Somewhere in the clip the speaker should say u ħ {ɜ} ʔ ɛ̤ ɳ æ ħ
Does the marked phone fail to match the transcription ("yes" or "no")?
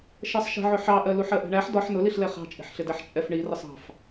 no